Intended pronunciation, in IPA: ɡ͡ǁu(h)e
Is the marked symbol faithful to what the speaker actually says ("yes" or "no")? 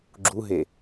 no